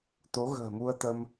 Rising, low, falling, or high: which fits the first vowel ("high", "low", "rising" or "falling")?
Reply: rising